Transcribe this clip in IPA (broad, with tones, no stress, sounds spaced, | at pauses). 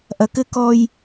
ʔ ɐ˨ k ɘ˦ k ɔ˦ j